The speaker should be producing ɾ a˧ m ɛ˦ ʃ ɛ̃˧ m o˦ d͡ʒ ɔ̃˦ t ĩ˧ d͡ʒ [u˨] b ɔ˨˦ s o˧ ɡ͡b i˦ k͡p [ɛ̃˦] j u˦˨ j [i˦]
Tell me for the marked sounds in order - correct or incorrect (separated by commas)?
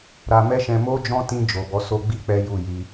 incorrect, incorrect, incorrect